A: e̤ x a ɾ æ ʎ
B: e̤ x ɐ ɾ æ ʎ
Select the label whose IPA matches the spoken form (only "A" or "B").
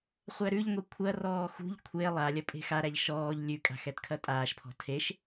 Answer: A